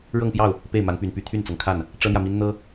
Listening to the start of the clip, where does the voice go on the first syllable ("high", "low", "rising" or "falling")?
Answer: falling